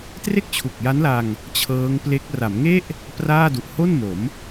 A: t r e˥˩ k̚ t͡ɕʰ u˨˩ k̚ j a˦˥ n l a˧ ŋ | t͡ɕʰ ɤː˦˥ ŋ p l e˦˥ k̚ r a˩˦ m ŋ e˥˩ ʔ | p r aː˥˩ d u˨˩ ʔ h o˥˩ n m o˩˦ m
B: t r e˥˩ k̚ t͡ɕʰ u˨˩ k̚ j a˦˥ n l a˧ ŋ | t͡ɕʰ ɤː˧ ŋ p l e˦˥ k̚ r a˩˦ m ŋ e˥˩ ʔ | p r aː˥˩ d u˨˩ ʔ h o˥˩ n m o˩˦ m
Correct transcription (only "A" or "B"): A